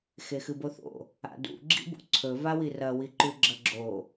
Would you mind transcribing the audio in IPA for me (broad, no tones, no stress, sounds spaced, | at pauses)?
x e x ɨ b o θ o̰ | a̰ d ṵ ɡ͡ǁ ḭ b ṵ ǀʰ ɵ v a w i r ɐ w i ǃ ʉ ɡ͡ǁ ɐ ɡ͡ǁ o